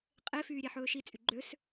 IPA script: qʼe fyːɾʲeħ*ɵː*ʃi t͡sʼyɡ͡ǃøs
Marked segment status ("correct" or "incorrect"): correct